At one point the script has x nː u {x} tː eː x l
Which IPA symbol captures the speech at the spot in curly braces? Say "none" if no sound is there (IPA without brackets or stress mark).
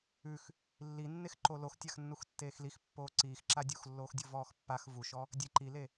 x